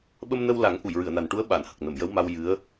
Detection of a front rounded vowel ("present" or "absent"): absent